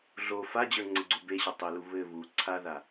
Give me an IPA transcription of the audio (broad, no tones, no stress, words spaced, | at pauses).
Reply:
ɮo fad͡ʑə˞ŋ͡ǀɘɡ͡ǀu beɕɘ tˤelu βɘ βu ǀʰaða